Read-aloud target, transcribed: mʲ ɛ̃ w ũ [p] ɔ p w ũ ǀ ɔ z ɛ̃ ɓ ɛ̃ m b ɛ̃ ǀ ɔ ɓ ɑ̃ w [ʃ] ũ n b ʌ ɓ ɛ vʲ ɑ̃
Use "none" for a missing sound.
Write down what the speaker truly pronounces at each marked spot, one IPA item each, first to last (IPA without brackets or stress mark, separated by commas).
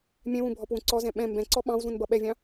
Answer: bʱ, z